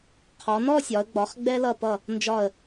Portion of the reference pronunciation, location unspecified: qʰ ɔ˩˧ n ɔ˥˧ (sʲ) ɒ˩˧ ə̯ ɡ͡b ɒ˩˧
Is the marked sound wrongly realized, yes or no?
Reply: no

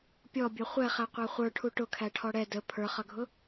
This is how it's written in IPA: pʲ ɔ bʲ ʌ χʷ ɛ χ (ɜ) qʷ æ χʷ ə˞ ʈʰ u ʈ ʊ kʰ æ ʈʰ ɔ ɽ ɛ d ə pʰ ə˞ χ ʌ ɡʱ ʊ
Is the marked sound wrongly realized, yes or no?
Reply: yes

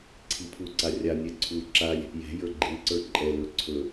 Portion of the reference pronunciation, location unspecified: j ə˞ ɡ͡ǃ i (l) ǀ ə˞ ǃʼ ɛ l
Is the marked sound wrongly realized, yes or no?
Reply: no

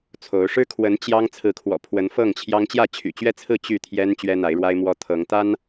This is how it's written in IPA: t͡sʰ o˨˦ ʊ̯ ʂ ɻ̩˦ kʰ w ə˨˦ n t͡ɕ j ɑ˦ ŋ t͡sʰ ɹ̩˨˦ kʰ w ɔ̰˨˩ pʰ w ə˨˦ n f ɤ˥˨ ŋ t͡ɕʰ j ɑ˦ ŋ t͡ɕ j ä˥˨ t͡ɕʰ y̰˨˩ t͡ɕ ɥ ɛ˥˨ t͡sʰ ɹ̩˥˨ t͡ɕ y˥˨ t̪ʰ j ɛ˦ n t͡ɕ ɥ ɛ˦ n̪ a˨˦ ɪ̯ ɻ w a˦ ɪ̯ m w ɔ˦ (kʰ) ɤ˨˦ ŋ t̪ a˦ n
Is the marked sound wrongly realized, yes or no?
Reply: yes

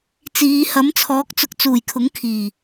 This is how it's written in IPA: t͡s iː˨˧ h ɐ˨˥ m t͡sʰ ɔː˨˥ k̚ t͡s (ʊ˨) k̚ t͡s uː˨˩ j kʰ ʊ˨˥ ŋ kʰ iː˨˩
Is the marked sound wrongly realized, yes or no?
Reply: yes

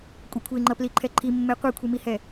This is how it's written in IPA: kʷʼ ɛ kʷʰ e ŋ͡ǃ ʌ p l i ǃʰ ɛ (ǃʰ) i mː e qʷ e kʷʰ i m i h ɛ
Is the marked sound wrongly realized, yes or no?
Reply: no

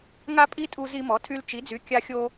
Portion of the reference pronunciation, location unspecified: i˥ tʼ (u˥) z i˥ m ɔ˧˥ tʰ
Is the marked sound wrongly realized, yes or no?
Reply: no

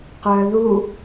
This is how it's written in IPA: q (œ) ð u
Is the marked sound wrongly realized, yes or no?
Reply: no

